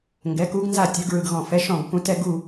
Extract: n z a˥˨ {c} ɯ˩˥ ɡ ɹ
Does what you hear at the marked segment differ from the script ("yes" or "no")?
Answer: yes